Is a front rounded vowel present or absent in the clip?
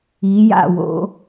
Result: absent